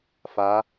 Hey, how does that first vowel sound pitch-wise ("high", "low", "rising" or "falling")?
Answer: rising